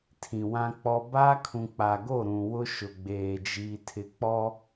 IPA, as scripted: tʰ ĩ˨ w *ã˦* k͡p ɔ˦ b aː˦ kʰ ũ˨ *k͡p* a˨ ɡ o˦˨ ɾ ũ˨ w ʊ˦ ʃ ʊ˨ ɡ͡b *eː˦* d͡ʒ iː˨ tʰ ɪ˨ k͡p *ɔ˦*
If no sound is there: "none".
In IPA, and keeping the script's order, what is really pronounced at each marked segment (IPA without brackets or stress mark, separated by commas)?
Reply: ã˦, k͡p, eː˨, ɔ˦